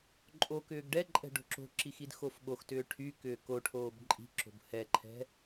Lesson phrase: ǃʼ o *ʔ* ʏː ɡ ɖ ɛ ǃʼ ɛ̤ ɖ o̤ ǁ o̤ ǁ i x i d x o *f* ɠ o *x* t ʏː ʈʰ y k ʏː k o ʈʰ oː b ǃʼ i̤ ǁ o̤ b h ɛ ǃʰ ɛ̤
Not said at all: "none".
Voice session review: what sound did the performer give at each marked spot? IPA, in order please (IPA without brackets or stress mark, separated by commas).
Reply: k, f, x